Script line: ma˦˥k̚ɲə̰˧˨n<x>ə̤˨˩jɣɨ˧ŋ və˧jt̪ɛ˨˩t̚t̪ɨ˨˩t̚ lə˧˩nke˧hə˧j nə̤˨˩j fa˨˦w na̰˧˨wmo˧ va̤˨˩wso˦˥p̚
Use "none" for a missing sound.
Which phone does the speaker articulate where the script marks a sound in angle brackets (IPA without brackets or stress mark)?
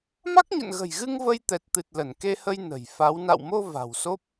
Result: ɣ